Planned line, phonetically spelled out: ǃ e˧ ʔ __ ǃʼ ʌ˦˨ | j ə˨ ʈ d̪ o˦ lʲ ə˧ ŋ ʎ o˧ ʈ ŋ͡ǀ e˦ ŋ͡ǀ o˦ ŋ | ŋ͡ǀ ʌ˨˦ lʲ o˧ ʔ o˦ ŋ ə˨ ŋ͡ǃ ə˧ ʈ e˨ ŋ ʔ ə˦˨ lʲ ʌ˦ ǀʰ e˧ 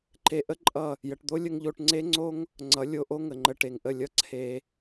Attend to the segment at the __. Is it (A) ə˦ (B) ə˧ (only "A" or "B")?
A